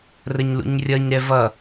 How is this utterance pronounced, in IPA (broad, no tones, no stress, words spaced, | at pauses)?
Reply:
rəɲlṵɲrʲʌɲɾɛ vʌ